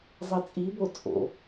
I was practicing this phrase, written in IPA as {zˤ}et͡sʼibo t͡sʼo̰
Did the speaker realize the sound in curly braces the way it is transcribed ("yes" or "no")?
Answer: yes